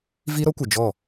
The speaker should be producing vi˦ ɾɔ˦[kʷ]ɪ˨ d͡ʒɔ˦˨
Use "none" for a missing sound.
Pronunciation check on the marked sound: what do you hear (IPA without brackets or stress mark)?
kʷ